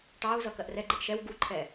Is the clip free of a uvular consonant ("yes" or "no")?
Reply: yes